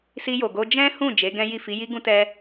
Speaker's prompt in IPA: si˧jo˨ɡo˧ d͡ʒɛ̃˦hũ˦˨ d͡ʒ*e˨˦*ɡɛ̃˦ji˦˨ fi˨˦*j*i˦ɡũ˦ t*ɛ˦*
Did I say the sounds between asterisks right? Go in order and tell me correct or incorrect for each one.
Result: correct, correct, correct

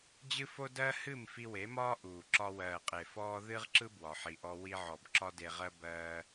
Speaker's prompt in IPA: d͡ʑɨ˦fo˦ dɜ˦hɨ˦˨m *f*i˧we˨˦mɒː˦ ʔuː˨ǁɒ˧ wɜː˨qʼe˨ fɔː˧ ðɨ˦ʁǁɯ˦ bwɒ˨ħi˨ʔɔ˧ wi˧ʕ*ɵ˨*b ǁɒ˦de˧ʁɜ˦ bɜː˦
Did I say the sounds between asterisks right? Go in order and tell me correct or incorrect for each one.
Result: correct, incorrect: ɔ˨

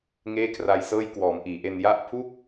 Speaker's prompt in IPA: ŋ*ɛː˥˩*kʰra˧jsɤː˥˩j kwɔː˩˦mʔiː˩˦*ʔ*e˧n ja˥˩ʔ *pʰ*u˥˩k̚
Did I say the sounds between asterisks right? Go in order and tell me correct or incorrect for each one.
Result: incorrect: eː˥˩, correct, correct

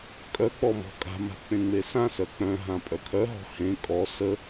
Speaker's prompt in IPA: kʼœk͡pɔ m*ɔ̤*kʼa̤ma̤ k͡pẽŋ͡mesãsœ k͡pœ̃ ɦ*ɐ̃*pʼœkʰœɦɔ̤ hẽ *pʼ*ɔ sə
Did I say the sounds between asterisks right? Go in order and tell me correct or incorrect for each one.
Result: correct, incorrect: ã, incorrect: kʼ

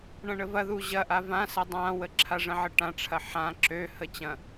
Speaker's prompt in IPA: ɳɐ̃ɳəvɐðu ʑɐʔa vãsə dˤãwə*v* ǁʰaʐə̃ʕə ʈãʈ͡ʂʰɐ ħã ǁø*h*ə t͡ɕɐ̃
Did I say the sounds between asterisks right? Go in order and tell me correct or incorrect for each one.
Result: incorrect: none, correct

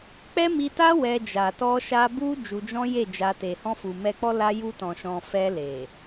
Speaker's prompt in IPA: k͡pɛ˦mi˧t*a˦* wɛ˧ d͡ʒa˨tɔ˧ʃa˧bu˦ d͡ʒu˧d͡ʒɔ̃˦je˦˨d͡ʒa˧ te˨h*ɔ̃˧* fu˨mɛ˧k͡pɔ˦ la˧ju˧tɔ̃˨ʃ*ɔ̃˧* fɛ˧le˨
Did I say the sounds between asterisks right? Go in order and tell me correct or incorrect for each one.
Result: correct, correct, incorrect: ɔ̃˨

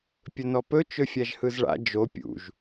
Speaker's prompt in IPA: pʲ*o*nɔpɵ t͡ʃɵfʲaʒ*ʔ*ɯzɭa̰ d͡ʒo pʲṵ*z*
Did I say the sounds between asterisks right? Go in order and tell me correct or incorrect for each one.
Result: incorrect: ɵ, incorrect: h, incorrect: ʒ

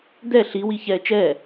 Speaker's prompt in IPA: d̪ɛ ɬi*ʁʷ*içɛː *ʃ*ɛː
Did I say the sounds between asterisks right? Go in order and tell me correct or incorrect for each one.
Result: incorrect: w, incorrect: t͡ʃ

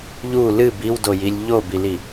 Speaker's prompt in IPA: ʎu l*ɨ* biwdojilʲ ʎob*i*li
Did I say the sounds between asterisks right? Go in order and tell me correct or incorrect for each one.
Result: correct, correct

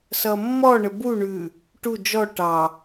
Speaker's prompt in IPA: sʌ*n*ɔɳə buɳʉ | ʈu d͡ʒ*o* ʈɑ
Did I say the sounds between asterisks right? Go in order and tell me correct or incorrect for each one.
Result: incorrect: mː, incorrect: ɔ

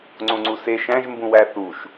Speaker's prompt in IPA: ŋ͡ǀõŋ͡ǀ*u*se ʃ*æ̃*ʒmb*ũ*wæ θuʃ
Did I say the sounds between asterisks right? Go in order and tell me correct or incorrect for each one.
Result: correct, correct, correct

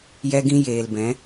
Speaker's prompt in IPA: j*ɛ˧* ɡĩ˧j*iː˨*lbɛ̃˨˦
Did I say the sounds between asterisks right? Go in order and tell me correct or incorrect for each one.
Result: correct, incorrect: eː˨

